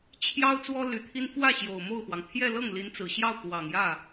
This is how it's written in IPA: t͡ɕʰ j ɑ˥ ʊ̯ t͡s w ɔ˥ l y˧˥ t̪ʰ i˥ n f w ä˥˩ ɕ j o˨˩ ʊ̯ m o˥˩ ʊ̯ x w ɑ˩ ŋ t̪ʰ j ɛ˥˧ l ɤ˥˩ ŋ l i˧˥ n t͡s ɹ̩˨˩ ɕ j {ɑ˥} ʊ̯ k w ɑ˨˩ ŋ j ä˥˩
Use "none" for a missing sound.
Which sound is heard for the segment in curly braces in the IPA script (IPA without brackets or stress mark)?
ɑ˥˩